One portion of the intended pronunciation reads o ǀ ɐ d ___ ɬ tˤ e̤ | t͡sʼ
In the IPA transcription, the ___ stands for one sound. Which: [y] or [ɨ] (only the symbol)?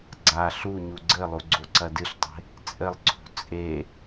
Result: ɨ